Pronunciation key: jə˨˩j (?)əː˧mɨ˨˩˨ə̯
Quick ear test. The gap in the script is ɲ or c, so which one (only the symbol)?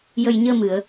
ɲ